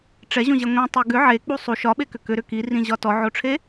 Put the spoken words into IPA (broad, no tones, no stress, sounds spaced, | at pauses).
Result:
ʈ͡ʂ ɛ ʑ õ ʑ ɛ ŋʷ ĩ tˤ e ɡ ʏ ʕ e k͡p u sˤ u ʃ ɒ ɓ e k ʏ k ʏ ɾ ʏ k i r ĩ ʑ ɒ t ɔ ʕ o ʈ͡ʂʰ e